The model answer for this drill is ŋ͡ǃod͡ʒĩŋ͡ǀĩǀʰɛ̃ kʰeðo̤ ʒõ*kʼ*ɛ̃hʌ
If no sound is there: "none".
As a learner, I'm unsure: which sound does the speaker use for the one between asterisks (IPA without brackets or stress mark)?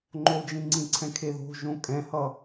kʼ